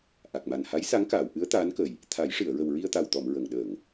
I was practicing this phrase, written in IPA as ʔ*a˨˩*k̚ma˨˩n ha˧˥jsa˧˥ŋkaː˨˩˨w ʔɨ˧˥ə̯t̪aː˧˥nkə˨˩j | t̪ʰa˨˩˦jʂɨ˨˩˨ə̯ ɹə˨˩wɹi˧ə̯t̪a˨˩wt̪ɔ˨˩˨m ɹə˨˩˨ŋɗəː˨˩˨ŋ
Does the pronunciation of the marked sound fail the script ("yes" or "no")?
no